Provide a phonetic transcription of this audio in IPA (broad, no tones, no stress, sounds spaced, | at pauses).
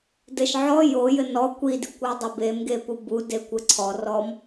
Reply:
d ɘ ʃ ʕ ɔ j o j ɘ n ɔ kʷ i d i kʷ w ɨ dˤ e b e m ɡ e p u b u d e kʷ ɘ ǀʰ ɔ r ɔ m